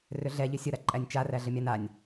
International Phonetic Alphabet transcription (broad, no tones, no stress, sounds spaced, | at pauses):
r ʏ ɮ ɛ ʎ ʏ sʲ ʊ ɾ a ǃʼ æ nʲ t͡ʃ a r æ ɮ ə mʲ a n a nʲ